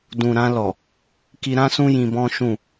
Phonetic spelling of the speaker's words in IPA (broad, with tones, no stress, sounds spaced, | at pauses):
d ũ˨ ɾ ã˧ l ɔ˨ | k i˧ ɾ ã˦ s ũ˦ j ĩ˧ b ɔ̃˦ ʃ ũ˦˨